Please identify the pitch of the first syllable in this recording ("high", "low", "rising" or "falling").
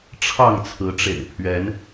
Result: falling